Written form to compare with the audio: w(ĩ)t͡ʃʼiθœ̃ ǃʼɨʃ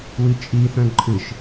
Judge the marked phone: incorrect: i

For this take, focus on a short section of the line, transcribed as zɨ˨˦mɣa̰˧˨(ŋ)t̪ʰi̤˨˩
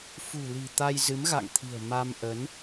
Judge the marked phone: correct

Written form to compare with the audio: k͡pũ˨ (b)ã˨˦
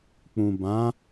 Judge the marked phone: correct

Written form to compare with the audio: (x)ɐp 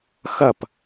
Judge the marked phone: correct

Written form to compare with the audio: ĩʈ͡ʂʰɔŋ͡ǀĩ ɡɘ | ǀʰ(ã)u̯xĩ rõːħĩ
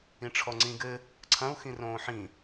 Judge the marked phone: incorrect: ɐ̃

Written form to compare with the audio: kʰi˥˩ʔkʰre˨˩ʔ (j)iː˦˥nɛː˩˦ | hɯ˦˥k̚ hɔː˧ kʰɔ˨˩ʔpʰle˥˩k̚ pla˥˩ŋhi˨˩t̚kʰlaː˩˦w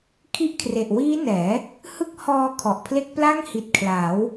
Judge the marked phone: incorrect: w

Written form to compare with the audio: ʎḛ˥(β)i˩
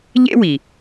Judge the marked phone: incorrect: w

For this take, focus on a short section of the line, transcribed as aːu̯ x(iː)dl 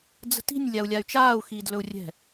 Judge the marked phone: correct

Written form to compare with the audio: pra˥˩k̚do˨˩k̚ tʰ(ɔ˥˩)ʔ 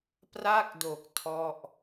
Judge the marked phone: correct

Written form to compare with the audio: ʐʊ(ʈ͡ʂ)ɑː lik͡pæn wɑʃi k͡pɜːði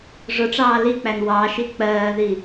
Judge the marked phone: correct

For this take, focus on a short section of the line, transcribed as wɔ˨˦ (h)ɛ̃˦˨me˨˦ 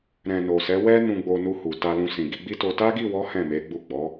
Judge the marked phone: correct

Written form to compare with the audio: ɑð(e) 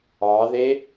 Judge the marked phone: correct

